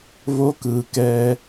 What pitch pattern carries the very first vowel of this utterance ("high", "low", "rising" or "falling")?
high